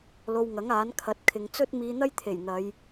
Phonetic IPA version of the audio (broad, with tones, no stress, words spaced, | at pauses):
lo˧wŋɐ˨˥ŋ aː˨˥nkʰɐ˨˥t̚kʰɪ˨˧ŋ t͡sɵ˥t̚miː˧n̪ɐ˥jt̪ʰe˨˩j n̪ɐ˨˧j